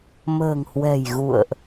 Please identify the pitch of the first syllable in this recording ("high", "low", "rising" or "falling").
low